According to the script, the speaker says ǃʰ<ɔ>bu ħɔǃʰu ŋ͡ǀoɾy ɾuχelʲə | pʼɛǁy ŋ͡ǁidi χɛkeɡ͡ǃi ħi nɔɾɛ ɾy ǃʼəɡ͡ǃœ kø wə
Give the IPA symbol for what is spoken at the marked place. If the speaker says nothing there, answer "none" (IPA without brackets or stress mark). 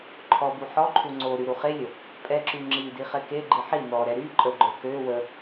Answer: ɔ